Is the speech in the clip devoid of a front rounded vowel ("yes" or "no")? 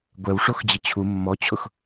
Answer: yes